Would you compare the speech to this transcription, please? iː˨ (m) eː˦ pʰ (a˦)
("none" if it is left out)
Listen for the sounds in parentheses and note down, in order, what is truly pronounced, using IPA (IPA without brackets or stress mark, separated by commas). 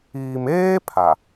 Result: m, a˨